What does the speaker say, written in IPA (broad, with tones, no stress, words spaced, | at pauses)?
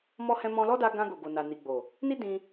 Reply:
mɔ˧hɛ̃˧ mɔ̃˧lɔ˦da˧ɡã˧ ɡo˨ɡo˨ na˨ ni˨ɡ͡bo˨ | ni˦dĩ˧